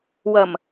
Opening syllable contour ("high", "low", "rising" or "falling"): low